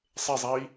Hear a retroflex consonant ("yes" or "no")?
no